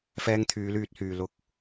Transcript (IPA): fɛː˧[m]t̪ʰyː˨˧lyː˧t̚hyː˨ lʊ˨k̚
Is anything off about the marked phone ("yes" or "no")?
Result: yes